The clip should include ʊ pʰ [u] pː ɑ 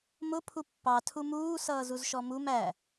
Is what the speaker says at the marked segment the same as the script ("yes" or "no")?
yes